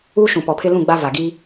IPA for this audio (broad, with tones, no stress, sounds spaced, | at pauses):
uː˦ ʃ ũ˨ p ɔ˨ pʰ ɪ˦ l ũ˦˨ ɡ͡b a˦ v a˨ ɡ i˦